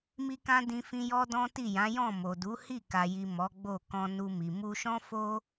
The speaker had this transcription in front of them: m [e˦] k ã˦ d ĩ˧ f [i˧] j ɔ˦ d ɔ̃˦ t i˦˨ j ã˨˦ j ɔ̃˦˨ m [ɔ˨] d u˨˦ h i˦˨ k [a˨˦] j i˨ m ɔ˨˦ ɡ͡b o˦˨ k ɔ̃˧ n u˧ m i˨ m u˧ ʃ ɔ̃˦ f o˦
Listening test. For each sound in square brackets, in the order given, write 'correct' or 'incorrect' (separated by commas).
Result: incorrect, incorrect, incorrect, incorrect